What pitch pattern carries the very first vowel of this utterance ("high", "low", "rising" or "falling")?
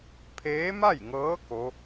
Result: rising